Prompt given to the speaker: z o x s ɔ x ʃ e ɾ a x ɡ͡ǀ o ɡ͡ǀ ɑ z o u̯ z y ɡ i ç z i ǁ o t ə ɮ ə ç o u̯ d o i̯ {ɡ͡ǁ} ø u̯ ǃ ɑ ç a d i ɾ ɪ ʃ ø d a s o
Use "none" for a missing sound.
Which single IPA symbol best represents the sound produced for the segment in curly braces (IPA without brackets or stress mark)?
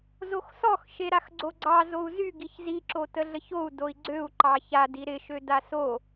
ɡ͡ǀ